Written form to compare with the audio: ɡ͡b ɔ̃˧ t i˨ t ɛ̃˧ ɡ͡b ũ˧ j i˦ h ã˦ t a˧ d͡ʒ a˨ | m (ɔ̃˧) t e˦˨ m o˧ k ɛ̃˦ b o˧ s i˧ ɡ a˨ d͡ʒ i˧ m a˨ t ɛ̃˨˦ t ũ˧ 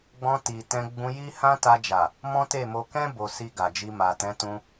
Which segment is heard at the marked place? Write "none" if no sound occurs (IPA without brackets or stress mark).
ɔ̃˦